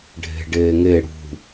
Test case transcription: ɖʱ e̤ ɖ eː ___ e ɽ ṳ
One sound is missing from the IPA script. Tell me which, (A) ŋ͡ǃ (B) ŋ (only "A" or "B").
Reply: B